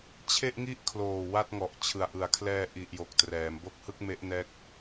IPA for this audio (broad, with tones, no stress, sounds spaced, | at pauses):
t͡ɕʰ e˥˩ ʔ ŋ i˥˩ ʔ kʰ l oː˨˩ w a˥˩ t̚ ŋ ɔ˨˩ ʔ t͡ɕʰ ɯ˨˩ a̯ ʔ ɯ˩˦ a̯ kʰ l ɛː˧ ʔ i˨˩ ʔ j o˨˩ k̚ t r ɛː˩˦ m b o˥˩ k̚ h ɯ˥˩ k̚ m e˦˥ ʔ n ɛː˦˥ k̚